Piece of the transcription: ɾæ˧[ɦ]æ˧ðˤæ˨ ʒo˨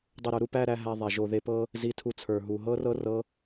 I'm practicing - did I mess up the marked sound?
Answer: no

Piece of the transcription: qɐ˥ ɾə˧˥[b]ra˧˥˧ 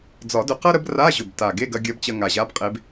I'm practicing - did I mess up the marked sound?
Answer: no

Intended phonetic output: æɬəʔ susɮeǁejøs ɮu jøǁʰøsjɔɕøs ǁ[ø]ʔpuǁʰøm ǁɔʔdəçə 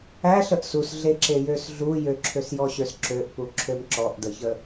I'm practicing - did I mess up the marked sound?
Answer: no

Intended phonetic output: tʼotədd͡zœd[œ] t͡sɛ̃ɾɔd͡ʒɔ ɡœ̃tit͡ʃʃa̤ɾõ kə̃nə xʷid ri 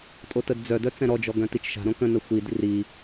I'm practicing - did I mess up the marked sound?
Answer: no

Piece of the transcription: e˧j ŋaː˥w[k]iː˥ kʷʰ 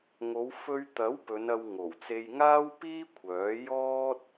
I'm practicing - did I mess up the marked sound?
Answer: yes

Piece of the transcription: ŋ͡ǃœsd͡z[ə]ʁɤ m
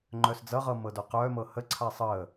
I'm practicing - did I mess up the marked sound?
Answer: yes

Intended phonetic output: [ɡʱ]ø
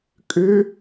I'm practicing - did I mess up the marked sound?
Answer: yes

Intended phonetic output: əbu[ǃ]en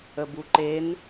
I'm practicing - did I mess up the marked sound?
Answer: no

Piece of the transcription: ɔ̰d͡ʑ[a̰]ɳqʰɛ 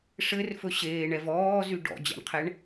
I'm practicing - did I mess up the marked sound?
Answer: no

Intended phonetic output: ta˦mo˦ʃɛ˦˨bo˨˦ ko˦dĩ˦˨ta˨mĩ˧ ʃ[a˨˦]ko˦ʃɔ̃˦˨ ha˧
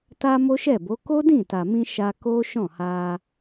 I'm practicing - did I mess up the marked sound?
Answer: yes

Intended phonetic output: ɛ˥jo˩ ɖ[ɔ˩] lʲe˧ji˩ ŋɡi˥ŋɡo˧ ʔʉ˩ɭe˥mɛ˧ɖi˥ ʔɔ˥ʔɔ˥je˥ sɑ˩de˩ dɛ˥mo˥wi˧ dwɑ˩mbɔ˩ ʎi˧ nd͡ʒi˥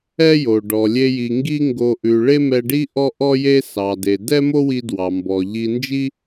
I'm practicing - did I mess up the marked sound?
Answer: no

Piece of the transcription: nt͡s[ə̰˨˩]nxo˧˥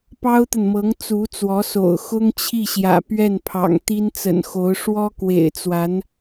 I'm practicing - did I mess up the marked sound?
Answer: no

